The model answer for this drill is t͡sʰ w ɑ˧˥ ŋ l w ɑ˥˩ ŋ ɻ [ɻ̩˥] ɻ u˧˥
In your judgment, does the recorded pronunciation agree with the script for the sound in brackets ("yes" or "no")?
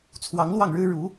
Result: yes